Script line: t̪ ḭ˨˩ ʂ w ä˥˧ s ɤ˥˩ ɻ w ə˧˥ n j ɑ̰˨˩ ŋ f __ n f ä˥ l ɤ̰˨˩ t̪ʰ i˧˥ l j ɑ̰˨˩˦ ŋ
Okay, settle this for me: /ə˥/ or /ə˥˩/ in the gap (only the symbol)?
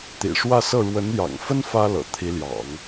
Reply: ə˥